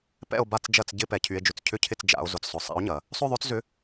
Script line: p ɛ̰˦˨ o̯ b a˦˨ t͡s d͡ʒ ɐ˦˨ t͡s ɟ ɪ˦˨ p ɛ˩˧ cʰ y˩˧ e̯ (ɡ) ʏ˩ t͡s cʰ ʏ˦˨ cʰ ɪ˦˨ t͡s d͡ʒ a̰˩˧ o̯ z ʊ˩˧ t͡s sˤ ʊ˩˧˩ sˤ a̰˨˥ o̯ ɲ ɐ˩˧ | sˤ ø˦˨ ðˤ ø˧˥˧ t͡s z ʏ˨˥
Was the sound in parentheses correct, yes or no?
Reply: no